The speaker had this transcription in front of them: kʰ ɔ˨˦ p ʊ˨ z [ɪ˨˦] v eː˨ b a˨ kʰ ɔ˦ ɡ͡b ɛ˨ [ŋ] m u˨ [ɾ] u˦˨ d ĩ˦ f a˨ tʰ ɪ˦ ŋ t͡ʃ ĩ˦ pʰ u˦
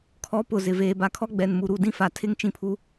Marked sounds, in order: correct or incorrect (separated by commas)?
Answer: incorrect, incorrect, correct